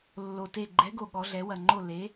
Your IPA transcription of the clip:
lː o˨˩ t e˦˨ ɡ͡ǃ ɛ˨˥ ɡ o˨˩ ɠ ɔ˩˧ ɮ ɛ˩˧ w ɐ˨˩ ŋ͡ǃ o˦˨ l e˨˥

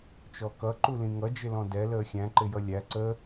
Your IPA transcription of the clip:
t͡ʃ ɔ k ʌ ǃ u l ĩ ŋ ʌ d͡ʒ ɪ l ɔ̃ d ɛ l əː xʲ æ̃ ǃ ɪ j ʌ lʲ æ ǀ ə

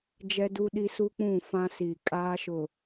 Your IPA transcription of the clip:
d͡ʒ ɛ˦ d u˦ ɗ i˦ s u˦ k͡p ũ˦˨ f ã˦ s i˨ kʼ aː˦ ʃ ʊ˨

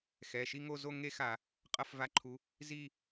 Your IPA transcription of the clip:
x ɛ˩˧˩ ʃ i˥˧ ŋ o˥˧ z o˥˧ ŋ e˥˧ x a˧˩˧ | qʼ ʌ˥˧ f v a˧˥˧ ǃʰ u˨˦ | z i˥˧

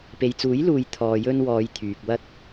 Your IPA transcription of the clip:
p e˨ j t͡s uː˨˥ j l uː˨ j t̪ʰ ɔː˨ j ɵ˧ n w ɔː˨˧ j t̪ʰ yː˨ k̚ w ɐ˧ t̚

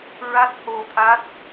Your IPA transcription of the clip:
ɹ a˦˥ t̚ h o˧ t̪ʰ a˦˥ t̚

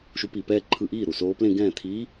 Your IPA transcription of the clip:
ʃ u˧˥ p i˧˩ p ɛː˥˧ ǃʰ ɯ˧˩ ʔ iː˥˩ ɾ u˥˩ s oː˧˥ p l ẽ˥˧ ɡ ɛ̃ː˥˩ t̪ʰ iː˧˥

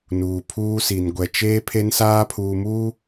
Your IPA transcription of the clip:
n uː˨ pʰ uː˦ s i˨ n ɡʷ ɛ˨ t͡ʃ eː˦ pʰ e˦ n s aː˦ pʰ uː˨ m uː˦

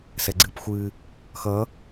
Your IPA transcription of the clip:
s ɛ ɡ͡ǀ ɨ p xʷ ɨ | x ʌ

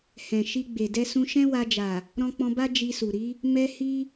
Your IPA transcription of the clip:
h ɛ̃˨ ʃ i˧ ɡ͡b e˨ d ɛ˧ s ũ˧ ʃ ɛ̃˦ w a˧ d͡ʒ a˨ | ɾ ɔ̃˧ k͡p ɔ̃˧ b a˦ d͡ʒ i˧ s u˨ ɾ i˨˦ | m ɛ˦ h i˦

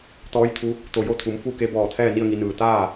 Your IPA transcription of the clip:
t̪ ɔː˧˥ j t̪ʰ u˧˥ | t̪ o˧˩ j o˥˨ t̪ʰ u˩˧ m f u˥˨ k e˧˥ b ɔː˧˩ t̪ʰ ɛː˥˨ n i˥˨ ə̯ ŋ i˩˧ n ɯː˩ t̪ aː˥˨

